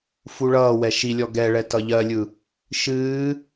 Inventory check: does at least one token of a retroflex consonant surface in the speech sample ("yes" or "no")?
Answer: yes